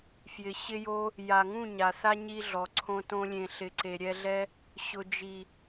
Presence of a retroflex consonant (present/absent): absent